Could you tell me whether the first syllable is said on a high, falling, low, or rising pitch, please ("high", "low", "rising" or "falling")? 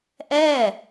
falling